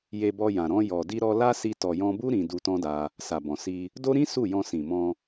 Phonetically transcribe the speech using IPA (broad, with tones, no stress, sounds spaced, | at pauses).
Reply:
j e˧ b ɔ˧ j ã˨ ɾ ɔ̃˧ j ɔ˨ d i˧ ɾ ɔ˧ l a˦ s i˧ t ɔ˨ j ɔ̃˧ b u˦ ɾ ĩ˧ d u˧ t ɔ̃˦ d a˧ | s a˨ b ɔ̃˨ s i˧ | d o˦ ɾ ĩ˦ s u˦˨ j ɔ̃˧ s ĩ˨ m ɔ̃˧